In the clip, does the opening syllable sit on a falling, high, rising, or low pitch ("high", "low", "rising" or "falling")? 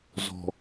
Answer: low